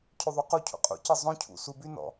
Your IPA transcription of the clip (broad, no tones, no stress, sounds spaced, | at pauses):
cʰ y ðˤ u q u cʰ ṵ qʼ ṵ c ɯ zˤ õ cʰ ṵ s u b y n ɔ̰